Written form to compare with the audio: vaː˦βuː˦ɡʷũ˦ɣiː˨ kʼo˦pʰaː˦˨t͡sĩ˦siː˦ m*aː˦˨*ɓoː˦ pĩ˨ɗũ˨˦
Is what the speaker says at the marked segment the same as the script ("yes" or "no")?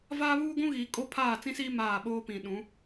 yes